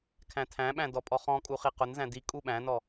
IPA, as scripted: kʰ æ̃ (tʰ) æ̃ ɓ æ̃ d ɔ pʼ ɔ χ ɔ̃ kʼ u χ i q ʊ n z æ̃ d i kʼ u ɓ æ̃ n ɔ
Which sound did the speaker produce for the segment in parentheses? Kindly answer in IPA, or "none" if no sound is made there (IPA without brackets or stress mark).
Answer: tʰ